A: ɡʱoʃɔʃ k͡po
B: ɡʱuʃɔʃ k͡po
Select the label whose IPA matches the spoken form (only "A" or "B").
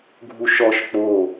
B